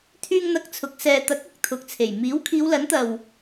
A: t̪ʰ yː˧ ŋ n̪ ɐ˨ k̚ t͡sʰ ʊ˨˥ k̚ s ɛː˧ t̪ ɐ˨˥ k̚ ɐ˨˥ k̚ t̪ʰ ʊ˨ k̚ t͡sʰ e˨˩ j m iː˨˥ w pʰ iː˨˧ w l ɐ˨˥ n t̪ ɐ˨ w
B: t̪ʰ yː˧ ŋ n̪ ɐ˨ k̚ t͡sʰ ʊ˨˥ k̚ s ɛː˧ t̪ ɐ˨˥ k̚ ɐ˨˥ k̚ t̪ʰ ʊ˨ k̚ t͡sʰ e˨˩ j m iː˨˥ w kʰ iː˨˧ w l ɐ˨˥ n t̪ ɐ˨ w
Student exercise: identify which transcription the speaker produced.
B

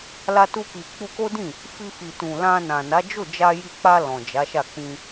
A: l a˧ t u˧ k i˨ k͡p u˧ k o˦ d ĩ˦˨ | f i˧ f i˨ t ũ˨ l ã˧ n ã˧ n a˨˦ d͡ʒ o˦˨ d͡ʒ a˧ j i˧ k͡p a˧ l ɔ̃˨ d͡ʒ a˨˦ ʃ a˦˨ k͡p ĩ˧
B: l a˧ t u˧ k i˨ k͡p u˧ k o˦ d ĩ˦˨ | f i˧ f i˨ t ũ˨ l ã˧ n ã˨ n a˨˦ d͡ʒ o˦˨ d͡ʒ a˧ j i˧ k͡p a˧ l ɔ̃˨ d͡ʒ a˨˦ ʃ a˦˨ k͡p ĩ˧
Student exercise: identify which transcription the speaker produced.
B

